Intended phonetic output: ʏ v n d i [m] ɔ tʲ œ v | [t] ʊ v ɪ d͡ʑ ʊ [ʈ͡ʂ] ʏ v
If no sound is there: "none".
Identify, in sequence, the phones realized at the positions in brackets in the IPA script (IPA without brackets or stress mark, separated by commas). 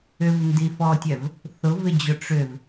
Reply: f, θ, ʈ͡ʂ